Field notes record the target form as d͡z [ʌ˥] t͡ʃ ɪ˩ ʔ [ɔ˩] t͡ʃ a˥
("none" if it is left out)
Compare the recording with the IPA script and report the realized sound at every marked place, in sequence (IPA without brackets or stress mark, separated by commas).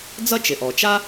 ʌ˥, ɔ˩